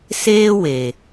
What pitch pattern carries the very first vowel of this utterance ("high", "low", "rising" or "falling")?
high